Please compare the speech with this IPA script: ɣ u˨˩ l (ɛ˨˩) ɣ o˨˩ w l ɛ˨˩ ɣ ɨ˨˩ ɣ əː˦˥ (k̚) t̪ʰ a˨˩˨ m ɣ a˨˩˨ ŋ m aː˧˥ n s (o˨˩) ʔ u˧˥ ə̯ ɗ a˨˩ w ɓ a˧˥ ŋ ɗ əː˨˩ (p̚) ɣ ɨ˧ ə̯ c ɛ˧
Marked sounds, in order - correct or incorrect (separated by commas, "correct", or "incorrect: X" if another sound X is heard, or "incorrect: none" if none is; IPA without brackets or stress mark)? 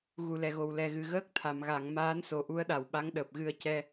correct, correct, correct, correct